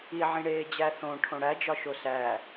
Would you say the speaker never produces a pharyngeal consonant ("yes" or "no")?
no